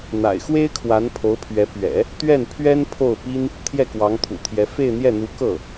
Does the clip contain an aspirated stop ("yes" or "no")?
yes